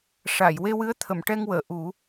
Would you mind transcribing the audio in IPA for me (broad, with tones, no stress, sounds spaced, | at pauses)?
ʂ a˨˩˨ j w e˧ w ɨ˧˥ ə̯ t̪ʰ ə˨˩˨ m ʈ ɛ˧ ŋ w əː˨˩˨ ʔ u˨˩˦